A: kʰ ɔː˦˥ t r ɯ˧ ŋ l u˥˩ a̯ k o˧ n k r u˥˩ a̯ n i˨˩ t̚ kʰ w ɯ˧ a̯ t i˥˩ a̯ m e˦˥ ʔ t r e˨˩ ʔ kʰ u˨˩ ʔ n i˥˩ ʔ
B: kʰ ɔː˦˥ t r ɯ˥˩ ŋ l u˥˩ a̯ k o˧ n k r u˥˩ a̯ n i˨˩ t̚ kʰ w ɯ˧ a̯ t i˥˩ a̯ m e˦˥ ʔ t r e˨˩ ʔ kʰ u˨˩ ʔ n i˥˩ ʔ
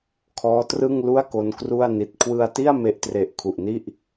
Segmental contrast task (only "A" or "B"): B